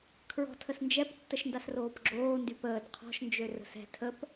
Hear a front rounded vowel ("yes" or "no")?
yes